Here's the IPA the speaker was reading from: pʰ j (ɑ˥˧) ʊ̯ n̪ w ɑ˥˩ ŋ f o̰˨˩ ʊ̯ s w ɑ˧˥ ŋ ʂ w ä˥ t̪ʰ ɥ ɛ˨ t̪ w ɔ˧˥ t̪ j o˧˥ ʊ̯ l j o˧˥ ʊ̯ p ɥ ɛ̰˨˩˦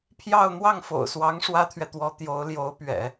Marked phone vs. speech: correct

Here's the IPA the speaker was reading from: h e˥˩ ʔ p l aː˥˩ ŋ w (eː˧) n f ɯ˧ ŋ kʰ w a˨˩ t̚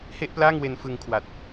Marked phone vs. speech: incorrect: e˧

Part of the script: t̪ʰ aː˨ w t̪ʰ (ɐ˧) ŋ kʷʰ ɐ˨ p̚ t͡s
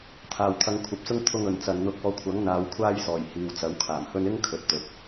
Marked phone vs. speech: correct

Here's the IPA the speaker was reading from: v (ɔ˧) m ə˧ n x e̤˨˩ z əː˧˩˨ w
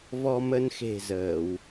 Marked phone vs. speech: correct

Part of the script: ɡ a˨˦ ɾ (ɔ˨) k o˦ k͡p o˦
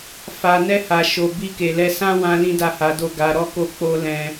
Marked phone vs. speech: incorrect: ɔ˦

